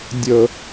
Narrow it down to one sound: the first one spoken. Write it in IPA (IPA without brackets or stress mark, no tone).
dʲ